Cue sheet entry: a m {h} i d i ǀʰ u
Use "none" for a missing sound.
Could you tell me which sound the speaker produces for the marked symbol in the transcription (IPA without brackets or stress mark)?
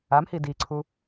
h